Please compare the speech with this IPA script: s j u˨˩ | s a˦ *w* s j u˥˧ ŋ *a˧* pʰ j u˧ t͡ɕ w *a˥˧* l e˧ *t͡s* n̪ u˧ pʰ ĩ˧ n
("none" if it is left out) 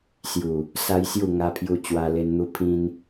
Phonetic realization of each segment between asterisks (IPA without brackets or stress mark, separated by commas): j, a˧, a˧, n